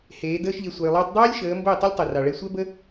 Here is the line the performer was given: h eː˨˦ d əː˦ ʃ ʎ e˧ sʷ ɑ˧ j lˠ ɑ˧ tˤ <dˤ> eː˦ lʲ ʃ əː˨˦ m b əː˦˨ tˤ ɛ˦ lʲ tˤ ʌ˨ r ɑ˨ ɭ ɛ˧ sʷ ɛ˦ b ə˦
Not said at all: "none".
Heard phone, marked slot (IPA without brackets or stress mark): dˤ